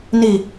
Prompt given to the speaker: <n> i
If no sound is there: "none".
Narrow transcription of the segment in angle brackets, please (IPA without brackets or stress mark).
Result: n